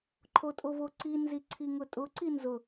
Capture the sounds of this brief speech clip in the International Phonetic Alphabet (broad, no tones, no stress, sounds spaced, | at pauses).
ǃʰ o tʼ o v o ǀ i n z i ǀʰ i ŋ ʊ tʼ ʊ ǀ i n z ʊ